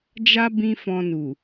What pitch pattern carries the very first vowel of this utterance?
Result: high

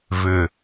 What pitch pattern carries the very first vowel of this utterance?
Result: low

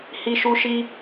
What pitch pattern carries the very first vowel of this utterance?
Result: high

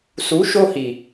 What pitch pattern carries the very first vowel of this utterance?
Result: rising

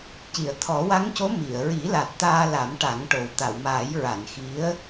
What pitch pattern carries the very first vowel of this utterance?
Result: low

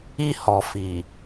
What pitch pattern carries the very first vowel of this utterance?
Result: high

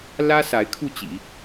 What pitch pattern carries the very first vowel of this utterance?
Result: high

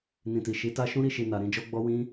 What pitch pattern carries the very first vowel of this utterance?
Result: low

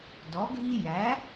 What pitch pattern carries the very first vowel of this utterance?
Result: rising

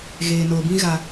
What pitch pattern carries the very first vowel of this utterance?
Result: low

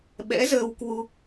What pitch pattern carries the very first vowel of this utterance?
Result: rising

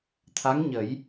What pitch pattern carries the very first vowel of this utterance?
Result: rising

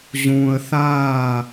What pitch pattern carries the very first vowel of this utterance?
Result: high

